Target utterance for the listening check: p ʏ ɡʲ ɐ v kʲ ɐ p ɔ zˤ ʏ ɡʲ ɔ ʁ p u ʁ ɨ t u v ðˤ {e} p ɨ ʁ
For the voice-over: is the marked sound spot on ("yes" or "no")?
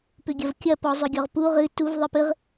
no